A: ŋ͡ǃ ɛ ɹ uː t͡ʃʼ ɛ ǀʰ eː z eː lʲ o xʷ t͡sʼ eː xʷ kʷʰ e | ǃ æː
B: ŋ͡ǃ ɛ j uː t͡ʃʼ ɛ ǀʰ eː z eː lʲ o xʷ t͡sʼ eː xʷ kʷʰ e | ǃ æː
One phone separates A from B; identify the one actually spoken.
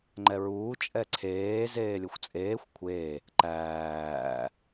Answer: A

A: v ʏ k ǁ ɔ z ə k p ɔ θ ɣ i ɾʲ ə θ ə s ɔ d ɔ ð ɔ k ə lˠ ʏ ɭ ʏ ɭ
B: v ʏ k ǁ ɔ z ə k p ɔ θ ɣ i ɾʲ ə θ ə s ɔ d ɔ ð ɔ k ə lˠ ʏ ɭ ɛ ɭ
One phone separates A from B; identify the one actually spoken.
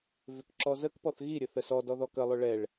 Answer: B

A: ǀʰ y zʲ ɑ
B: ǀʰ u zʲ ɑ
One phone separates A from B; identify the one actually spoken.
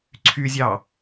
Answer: A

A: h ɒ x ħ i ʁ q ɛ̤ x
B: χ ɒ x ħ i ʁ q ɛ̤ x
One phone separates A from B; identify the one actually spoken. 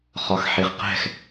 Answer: B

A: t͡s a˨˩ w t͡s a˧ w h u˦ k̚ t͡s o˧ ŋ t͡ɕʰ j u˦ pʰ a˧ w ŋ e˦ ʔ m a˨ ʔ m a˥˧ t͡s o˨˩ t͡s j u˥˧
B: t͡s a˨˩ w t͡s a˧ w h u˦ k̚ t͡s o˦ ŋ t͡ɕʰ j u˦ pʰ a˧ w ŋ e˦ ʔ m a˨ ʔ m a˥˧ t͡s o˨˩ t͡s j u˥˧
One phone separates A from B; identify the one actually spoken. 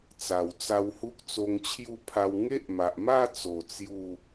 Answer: A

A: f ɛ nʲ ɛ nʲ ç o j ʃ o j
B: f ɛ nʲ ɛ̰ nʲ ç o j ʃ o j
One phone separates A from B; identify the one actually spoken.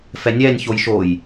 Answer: A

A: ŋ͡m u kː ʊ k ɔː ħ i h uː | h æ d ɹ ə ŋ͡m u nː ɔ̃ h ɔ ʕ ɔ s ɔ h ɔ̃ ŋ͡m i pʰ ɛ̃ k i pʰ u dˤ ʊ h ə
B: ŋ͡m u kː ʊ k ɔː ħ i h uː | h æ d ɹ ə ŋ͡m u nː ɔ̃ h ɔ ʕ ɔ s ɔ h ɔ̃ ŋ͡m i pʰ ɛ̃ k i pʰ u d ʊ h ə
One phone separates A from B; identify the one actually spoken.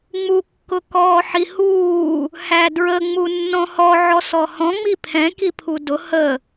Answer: B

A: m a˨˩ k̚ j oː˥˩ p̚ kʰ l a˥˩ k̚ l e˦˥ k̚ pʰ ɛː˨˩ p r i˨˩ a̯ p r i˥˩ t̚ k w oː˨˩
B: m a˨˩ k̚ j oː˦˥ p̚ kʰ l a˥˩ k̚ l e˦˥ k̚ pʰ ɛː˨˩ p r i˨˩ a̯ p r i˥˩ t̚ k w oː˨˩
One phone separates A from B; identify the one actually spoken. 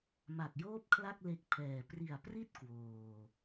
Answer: A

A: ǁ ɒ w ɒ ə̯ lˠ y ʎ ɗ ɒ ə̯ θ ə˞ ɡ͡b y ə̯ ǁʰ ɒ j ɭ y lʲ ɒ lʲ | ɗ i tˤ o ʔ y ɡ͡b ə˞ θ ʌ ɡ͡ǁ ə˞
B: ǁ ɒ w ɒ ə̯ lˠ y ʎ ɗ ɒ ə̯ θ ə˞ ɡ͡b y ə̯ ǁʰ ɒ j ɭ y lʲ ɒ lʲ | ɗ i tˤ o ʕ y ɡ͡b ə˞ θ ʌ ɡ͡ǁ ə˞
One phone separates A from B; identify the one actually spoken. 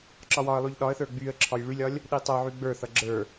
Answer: B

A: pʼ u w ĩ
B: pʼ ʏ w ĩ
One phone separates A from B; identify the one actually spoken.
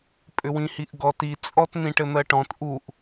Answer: B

